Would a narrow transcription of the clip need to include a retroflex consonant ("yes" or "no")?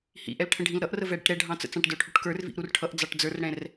yes